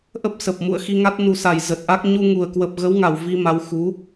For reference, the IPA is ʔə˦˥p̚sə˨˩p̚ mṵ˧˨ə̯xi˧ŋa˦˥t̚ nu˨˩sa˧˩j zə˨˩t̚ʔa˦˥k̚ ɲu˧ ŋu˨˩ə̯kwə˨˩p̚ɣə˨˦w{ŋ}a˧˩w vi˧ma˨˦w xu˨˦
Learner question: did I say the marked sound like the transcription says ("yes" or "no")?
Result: yes